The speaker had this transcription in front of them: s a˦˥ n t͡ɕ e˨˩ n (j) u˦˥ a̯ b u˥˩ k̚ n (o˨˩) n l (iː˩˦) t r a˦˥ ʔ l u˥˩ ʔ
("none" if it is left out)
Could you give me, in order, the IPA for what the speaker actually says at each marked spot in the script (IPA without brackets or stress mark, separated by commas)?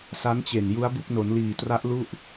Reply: j, o˩˦, iː˨˩